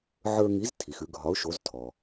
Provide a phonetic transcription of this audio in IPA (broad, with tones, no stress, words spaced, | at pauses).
ʕə˞˧ŋi˩˥z tʰi˩xʉ˧ ɡʱɒ˩˥ʊ̯ʃo˩˥z tʰɔ˩